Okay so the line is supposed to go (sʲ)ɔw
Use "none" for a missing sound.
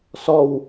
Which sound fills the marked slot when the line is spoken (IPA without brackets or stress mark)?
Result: s